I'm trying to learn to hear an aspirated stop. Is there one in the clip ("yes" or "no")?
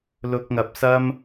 no